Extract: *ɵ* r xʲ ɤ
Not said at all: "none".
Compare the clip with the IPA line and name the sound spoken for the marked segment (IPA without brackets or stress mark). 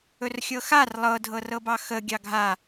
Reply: ɵ